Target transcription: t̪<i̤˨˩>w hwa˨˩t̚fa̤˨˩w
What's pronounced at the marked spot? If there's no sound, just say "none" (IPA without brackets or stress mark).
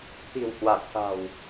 i̤˨˩